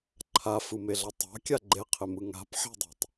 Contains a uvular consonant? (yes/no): yes